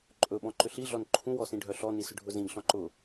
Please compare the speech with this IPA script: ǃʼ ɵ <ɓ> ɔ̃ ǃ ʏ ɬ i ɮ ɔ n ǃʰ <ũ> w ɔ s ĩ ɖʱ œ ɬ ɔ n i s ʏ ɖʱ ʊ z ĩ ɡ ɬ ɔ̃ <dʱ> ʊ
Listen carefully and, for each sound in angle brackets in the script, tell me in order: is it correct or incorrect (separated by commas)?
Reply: correct, correct, incorrect